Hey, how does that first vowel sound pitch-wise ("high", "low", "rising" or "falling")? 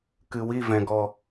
low